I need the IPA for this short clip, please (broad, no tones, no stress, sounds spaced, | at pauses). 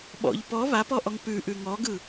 ɓ ɔ̰ ʎ p ɔ β a p ɔ ʔ ɔ ŋ p ʉ ʔ ʉ ŋ ɔ ɡ ɯ